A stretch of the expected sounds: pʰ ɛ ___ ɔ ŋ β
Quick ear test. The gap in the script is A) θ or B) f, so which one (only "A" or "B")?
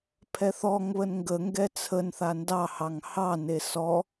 A